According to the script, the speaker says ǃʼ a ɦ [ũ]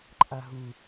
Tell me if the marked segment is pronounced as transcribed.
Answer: no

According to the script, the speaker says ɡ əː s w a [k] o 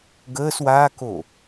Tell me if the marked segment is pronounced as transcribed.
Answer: yes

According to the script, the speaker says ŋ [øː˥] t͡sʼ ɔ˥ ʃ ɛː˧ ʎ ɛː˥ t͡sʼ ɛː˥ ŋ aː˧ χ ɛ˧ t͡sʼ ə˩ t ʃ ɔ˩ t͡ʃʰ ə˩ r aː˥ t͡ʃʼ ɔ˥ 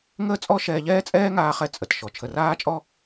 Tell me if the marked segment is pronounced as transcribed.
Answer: no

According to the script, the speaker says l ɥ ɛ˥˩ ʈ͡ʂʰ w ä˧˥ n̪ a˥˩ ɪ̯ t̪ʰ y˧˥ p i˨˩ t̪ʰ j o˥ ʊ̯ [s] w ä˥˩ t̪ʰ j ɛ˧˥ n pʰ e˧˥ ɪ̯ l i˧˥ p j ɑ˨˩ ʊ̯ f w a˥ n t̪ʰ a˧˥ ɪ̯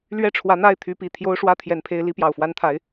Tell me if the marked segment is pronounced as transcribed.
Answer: no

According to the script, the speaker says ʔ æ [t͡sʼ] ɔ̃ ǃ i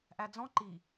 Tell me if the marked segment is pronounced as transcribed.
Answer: no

